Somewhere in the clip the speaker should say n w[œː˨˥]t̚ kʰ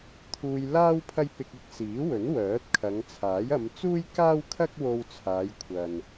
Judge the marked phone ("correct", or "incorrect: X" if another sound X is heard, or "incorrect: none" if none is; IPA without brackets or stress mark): correct